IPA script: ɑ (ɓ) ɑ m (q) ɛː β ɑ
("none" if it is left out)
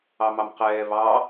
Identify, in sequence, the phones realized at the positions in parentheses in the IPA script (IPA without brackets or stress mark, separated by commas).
m, q